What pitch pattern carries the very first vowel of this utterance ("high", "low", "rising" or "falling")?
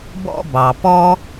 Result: high